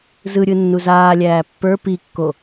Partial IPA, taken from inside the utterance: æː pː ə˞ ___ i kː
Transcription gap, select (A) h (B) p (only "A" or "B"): B